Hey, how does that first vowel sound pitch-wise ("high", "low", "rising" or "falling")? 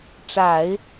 low